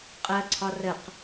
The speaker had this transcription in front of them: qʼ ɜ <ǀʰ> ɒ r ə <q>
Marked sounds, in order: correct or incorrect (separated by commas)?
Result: correct, correct